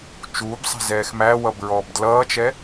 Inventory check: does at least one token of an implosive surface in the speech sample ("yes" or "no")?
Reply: no